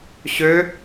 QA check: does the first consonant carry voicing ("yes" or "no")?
no